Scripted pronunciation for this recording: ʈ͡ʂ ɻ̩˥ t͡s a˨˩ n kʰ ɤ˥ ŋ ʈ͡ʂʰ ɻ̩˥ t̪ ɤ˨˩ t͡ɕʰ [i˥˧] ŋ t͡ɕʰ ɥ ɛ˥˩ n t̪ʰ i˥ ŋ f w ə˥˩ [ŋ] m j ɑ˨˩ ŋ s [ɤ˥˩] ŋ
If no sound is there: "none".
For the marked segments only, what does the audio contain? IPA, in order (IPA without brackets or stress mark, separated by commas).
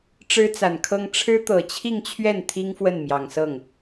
i˥˧, n, ɤ˥˩